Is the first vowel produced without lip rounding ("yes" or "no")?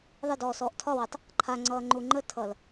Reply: yes